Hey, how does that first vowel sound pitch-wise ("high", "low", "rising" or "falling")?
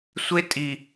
high